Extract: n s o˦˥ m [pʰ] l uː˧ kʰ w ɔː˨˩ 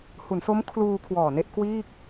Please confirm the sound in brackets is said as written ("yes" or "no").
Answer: no